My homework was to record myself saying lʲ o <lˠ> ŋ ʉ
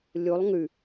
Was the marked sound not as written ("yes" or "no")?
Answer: no